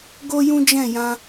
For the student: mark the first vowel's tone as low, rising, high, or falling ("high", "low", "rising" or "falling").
high